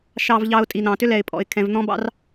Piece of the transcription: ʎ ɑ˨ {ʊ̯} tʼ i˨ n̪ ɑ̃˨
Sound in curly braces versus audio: correct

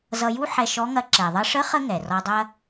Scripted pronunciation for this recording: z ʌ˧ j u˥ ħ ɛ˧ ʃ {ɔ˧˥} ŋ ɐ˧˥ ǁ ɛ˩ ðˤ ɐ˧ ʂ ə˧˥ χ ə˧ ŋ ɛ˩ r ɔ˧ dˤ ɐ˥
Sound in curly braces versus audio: correct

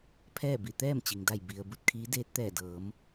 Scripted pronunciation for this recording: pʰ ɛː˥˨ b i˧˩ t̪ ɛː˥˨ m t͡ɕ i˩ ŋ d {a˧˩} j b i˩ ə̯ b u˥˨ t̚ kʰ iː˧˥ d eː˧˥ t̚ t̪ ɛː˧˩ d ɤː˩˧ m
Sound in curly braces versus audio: correct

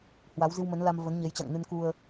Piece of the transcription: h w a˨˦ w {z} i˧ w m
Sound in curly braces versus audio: correct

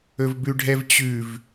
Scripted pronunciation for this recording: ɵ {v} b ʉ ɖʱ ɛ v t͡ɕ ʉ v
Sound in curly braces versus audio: correct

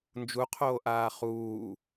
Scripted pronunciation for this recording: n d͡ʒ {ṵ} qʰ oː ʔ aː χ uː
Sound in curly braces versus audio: incorrect: u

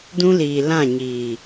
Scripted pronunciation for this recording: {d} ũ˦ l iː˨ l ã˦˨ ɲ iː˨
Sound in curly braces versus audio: correct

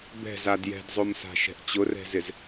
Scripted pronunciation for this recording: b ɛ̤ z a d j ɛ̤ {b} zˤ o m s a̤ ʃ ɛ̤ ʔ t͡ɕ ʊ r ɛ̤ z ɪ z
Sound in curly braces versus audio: incorrect: d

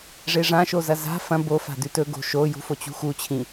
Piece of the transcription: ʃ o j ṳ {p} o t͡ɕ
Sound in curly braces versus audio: incorrect: f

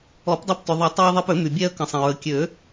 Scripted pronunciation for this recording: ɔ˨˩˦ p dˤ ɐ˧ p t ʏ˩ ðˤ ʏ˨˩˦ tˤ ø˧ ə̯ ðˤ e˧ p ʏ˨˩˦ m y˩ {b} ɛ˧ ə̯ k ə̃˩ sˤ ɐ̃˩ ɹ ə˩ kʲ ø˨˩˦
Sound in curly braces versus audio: incorrect: bʲ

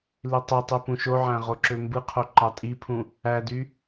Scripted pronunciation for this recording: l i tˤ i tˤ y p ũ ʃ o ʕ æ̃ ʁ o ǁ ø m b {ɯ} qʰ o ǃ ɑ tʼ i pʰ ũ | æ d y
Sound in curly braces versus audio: correct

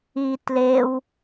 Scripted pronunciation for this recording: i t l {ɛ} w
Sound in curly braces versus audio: incorrect: e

